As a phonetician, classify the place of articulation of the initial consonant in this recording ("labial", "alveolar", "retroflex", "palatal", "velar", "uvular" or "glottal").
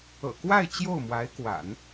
velar